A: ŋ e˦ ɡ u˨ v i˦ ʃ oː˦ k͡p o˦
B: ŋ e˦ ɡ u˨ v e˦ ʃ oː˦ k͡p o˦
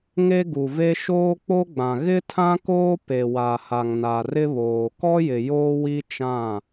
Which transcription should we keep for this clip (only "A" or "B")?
B